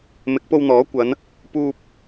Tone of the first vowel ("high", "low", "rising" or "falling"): rising